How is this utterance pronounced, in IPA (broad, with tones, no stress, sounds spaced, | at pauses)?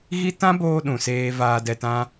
ɣ i˦ t ã˦ b oː˧ ɗ ũ˨ s eː˧ v aː˧ d ɛ˧ t ã˦